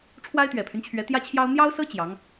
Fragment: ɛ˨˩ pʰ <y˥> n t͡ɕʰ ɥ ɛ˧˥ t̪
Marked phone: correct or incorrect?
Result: incorrect